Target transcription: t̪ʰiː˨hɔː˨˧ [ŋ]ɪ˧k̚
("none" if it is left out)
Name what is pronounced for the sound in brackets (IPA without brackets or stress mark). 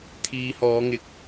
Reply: ŋ